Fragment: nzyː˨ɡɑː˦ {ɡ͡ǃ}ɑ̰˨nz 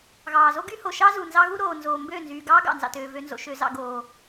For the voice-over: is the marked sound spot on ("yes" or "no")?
no